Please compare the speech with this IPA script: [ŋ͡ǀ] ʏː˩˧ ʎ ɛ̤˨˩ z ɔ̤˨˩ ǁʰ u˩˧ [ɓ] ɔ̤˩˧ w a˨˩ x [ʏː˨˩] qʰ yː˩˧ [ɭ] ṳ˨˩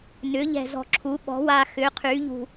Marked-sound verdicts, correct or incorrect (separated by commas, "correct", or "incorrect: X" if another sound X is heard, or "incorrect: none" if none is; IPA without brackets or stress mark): incorrect: n, correct, incorrect: ʏː˩˧, incorrect: ʎ